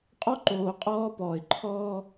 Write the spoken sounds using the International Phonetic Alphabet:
qʼ ɔ˦ ǃ oː˨ qʼ ɔː˦ p ɔː˨ ɪ̯ ǃʰ ɔː˦

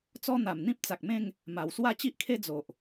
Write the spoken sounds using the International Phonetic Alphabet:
t͡s ɔ˦ n̪ a˨˩ m n̪ ĩ˦ p̚ t͡s a˨ k̚ m ẽ˥˧ ŋ | m a˨˩ w s w a˥˧ t͡ɕ i˦ ʔ kʰ e˦ d͡z o˨ ʔ

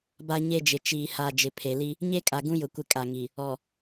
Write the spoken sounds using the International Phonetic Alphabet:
b a˦ ɲ e˦ d͡ʒ ɪ˨ t͡ʃ iː˨ h a˨ d͡ʒ ɪ˨ pʰ e˨ l i˦ | ɲ e˦ kʼ a˨ ɡ ũ˦ j ʊ˨ kʷ ɪ˦ kʼ a˨ ŋ i˨ | ɔ˨

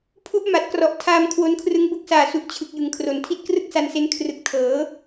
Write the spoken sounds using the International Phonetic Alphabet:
pʰ u˦˥ ʔ m a˨˩ t̚ k r ɔ˨˩ ʔ tʰ aː˧ m kʰ w o˧ n kʰ r ɯ˦˥ ŋ b o˦˥ k̚ s aː˨˩ s u˨˩ ʔ t͡ɕʰ ɯ˨˩ k̚ j ɯ˩˦ ŋ kʰ r o˨˩ n tʰ i˥˩ t̚ k r ɯ˥˩ k̚ s a˧ n s e˦˥ n kʰ r ɯ˨˩ k̚ tʰ ɤː˩˦

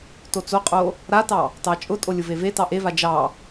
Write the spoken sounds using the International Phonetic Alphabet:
t o t͡s o qʼ o | ɾ a t ɑ | t ɑ t͡ʃʼ ʊ tʼ o lʲ ʊ v e v e t ɑ ʔ e v a d͡ʒ ɑ

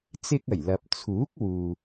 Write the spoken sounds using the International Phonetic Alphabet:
t͡s ɪ˧ k̚ ɐ˨˩ j l ɐ˨ p̚ t͡sʰ uː˨˥ k̚ w uː˨

